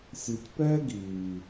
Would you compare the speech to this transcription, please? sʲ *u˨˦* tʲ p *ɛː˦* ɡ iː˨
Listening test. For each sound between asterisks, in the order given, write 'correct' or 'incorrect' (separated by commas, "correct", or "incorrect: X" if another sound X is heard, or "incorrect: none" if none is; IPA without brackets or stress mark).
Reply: incorrect: u˨, correct